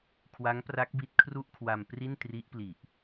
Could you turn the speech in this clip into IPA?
kʰ w a˦˥ ŋ p r a˦˥ k̚ b i˦˥ t̚ kʰ r u˥˩ ʔ kʰ w a˧ m p r i˥˩ n t r i˦˥ ʔ p l i˨˩ ʔ

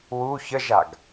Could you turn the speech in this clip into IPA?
w u ç ə ʒ a ɡ

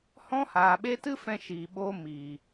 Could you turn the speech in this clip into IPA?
h ɔ̃˦ h aː˨ ɓ e˦ t ɨ˦ f ɛ̃˧ ʃ iː˨ ɓ oː˧ m iː˨

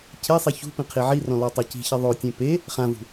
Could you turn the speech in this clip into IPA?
cʰ e sˤ i ç ṳ p ĩ qʰ i ʕ i r ɔ̃ l ɔ tˤ i c i̤ ç e ðˤ o tʲ ẽ p e | χ ã v ṳ

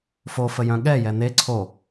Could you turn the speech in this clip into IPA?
f o f ə j œ̃ ɠ ɛ j ɛ n̪ e ǀʰ o

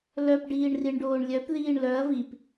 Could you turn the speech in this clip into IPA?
l œ p ɖ iː ɳ r i ɳ ɖ oː ɳ lʲ œ p ð iː ɳ l œ ɐ̯ v i p

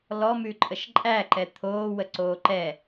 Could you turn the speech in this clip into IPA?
l ɔ m ʉ ǃʼ ə ʃ ǃʼ æ ǃ ɛ t̪ʰ oː w ə ǀ oː ǃ ɛ

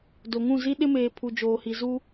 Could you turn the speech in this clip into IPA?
d o˨ ŋ ũ˦˨ z i˦ ɗ ɪ˦ m eː˨ pʰ u˨ d͡ʒ oː˨ h i˨ z u˦

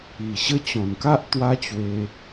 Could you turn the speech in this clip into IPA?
i˨˩ ɕ ə˦ t͡ɕ ɔ̃˨˩ n k a˦ ʔ t̪ w a˦ t͡ɕ w e˧

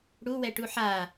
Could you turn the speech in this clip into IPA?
ɽ u w ɛ ʈ u ħ a

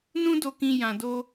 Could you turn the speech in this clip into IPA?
n ũ˦ d o˧ k ĩ˧ j ã˧ d o˦

